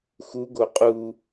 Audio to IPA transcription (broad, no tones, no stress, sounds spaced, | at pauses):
x u ɡ o qʼ u